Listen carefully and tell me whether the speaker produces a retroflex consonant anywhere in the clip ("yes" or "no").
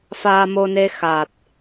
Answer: no